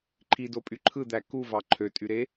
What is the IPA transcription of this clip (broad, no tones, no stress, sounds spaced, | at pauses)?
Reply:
ǃʰ i d o pʼ y ǃʰ ɯ d̪ æ k u v ɑ ǃʰ ø tʼ y ɾ e